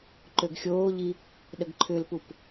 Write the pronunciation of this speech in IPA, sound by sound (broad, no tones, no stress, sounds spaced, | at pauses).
ǃ ø ɡ xʲ oː ʎ i | ɗ ə ɡ ǃʰ ʏ l p u p